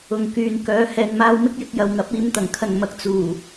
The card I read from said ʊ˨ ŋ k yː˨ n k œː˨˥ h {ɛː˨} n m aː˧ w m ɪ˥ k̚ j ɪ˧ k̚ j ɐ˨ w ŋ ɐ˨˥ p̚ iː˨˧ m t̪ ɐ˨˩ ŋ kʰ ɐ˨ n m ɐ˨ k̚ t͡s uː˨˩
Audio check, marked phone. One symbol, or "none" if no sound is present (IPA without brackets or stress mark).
ɛː˨